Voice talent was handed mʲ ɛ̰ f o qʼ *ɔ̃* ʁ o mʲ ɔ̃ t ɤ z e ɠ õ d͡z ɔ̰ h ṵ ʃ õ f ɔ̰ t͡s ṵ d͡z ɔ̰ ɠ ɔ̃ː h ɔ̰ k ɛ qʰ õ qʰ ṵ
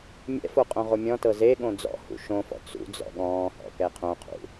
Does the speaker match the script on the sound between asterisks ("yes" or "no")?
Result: no